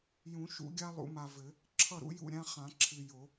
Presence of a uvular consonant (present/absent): present